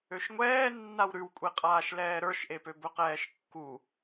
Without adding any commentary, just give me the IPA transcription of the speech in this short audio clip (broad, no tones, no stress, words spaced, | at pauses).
øʃŋʷɛːnːaw ɾʉwkʷʼeqʼaːʃ lɛːɾə˞ʃʔepø bɵqɛːʃkːu